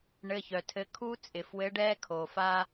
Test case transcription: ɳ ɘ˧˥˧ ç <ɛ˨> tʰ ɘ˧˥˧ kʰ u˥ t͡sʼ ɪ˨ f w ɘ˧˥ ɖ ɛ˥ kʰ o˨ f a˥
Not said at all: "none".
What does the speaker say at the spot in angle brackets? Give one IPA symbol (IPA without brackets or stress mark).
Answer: œ˨